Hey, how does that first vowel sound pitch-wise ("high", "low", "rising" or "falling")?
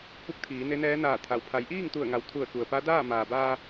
rising